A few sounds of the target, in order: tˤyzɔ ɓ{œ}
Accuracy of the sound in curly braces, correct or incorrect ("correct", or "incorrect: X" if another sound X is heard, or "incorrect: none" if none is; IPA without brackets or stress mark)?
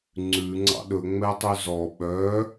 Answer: correct